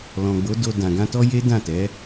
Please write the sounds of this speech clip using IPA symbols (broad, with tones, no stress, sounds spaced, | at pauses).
l ɔ̃˨ ɡ͡b o˨˦ d o˧ d ã˨ ɡ ã˧ t ɔ˦ j e˦ d ã˦˨ t ɛ˨˦